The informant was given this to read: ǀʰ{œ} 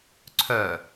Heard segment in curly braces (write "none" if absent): œ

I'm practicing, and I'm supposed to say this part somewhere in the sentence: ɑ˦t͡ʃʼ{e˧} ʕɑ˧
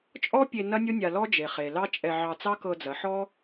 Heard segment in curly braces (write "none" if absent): ɛ˧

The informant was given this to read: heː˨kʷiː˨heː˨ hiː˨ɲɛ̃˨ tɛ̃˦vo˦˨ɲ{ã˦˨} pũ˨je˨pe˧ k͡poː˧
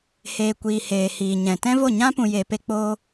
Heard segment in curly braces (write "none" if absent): ã˦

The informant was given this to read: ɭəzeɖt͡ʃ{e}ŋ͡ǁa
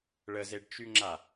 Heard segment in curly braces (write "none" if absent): y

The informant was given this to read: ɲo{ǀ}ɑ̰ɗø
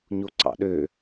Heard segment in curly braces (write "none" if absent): ǀ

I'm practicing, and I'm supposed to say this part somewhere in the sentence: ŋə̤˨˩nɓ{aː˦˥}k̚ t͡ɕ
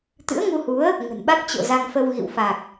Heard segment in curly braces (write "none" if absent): a˦˥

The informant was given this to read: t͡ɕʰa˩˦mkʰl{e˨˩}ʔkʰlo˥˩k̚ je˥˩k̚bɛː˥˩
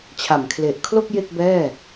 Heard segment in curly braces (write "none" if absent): e˨˩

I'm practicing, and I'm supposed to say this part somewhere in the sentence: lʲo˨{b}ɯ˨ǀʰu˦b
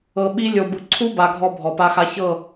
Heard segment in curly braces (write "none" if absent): b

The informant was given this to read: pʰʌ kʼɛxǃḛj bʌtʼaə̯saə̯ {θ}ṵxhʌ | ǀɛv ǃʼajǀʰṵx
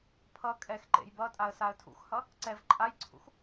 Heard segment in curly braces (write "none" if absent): tʰ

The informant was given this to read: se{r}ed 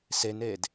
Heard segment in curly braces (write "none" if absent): n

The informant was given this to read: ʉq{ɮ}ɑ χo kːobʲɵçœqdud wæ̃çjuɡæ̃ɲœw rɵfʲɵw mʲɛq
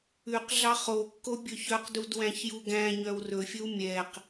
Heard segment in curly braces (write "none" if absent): ɮ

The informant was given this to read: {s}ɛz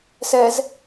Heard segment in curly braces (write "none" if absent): s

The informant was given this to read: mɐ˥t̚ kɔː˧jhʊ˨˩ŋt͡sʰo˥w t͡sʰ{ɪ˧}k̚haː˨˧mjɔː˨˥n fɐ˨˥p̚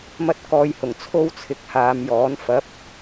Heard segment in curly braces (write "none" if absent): ɪ˧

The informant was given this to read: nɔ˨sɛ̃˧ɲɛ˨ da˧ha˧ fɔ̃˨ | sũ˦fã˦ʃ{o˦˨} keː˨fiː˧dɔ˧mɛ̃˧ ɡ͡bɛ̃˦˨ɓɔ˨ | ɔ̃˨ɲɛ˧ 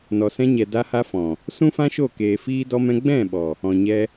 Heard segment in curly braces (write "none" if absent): o˦˨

